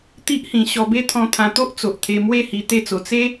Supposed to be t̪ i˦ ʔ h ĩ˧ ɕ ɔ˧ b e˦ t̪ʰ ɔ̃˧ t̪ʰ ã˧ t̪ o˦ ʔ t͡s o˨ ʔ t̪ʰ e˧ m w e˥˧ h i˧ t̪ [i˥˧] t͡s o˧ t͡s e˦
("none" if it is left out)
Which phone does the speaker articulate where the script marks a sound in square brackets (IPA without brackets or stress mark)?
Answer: e˥˧